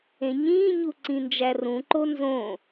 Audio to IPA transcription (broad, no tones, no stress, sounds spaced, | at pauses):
ẽ ɲ ĩː ɲ u ǀ ĩ n d͡ʒ æ r ũ ǃ o n z õ